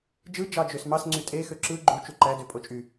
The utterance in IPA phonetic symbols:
d͡ʒɯ d͡ʒɑd͡ʒøsmɑs ŋ͡ǀytʼe xøǁɯ ɡ͡ǃu t͡ʃuǃæ døpʼot͡ʃʼy

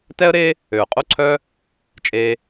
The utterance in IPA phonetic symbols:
tɛ˦ə̯ɾe˦ | ø˨ʊ̯qʼo˦ǀʰœ˦ | t͡ʃʼe˧

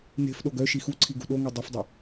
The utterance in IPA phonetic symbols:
ne̤fɗoɡ œ ʃixuǀʰi ɡṳɗoŋe dˤɵfdˤe

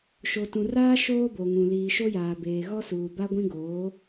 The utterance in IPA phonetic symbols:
ʃo˨tũ˨raː˦ ʃoː˦bo˨ŋũ˨ liː˨ʃo˦jaː˨beː˨ ɣɔ˦suː˨ba˦ ɡʷĩ˦ɡoː˨˦

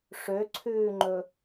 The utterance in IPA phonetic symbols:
ʂøǀʰʉːŋ͡ǃɵ

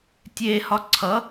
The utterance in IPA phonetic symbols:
tʲe hɒǀʰʌ

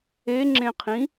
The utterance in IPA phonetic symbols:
eŋ͡ǁẽqʰĩ

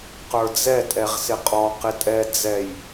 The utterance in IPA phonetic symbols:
qə˞d͡zɛ tʼɛʁsɪqʼɔ qɪtʼɛ d͡zɛj

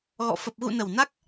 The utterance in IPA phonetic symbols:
ɣɔ̰˧˨ fə˨˩p̚ɣṵ˧˨nə˨˩w na˦˥k̚

